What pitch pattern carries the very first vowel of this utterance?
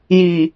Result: low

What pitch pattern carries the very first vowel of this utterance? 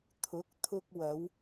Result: rising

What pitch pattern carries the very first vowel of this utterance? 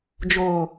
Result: low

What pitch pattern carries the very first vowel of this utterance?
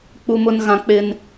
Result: high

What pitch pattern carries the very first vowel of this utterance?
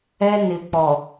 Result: high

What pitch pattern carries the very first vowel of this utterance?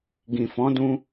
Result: low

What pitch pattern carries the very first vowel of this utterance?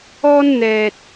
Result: high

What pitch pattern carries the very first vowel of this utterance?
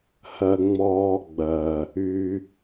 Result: high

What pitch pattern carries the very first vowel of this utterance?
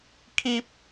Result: high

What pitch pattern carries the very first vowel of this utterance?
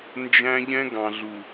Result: high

